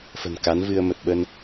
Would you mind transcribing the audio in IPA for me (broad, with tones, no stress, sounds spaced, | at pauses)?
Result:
f ə̤˨˩ n k a˨˦ n v ɨ˧ ə̯ m ə˨˩ t̚ ɓ ə˧ n